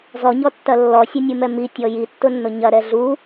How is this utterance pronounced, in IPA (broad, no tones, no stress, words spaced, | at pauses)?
zɔɲɔtːɐ lːɔsʲɛnʲumɛ mitʲɔ jitːʊnːʊ ɲɐɾɛ ɮu